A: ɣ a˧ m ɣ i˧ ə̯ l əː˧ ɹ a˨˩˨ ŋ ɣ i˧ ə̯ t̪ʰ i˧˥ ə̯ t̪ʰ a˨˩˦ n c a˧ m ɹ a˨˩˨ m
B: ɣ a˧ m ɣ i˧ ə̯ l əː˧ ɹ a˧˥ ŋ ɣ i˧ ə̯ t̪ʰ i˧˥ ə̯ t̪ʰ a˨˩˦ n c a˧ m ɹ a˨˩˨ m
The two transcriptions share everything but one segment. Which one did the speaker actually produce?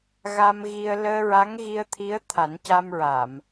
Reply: B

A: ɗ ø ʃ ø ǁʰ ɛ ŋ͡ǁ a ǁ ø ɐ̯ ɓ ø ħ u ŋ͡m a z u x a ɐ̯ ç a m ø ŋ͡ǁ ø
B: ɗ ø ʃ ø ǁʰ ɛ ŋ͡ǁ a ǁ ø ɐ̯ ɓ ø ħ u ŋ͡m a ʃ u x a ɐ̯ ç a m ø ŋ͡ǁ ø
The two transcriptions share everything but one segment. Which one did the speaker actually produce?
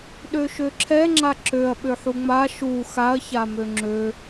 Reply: B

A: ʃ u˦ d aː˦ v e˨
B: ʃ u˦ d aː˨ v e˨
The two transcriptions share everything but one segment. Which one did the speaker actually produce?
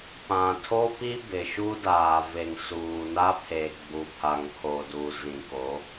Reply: B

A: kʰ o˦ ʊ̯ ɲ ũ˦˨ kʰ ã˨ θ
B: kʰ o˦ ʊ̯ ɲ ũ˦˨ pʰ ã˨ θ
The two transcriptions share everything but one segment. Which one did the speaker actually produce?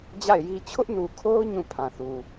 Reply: B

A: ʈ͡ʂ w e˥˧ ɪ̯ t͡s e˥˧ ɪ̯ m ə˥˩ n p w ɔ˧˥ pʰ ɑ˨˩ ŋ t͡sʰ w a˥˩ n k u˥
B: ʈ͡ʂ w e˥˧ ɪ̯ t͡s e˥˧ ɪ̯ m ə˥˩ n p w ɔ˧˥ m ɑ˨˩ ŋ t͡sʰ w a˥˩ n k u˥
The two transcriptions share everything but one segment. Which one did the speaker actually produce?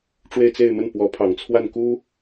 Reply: A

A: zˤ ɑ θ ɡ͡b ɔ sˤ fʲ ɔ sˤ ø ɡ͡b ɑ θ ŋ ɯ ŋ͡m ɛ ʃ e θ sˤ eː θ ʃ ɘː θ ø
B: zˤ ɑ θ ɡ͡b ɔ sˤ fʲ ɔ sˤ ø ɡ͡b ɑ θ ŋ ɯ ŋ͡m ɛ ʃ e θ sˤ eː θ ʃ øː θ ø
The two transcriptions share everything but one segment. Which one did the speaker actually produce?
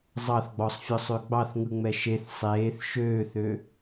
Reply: B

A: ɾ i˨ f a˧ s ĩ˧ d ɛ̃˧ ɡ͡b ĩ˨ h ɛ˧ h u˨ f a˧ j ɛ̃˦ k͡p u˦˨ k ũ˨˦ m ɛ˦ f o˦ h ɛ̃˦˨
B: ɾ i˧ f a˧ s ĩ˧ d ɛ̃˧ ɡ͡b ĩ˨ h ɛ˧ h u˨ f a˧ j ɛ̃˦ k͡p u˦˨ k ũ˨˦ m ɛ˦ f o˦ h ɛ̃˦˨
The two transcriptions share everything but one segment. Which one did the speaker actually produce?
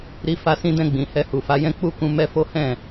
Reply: B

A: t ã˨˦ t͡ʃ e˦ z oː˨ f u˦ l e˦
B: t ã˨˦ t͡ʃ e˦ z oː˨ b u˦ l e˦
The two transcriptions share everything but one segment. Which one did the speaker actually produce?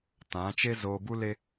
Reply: B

